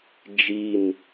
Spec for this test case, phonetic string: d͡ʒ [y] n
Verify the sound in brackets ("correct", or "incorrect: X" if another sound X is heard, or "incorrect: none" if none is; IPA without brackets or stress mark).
incorrect: i